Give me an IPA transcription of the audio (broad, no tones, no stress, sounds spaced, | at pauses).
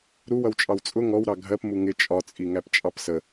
ɾ u w ʌ w t͡ʃʼ ɑ w t͡sʼ ʊ ŋ ɔ w ɾ ɑ ɡʱ ɜ p m u ŋ ɪ t͡ʃʼ ɒ t͡sʼ i ŋ æ p t͡ʃʼ ɑ p s ə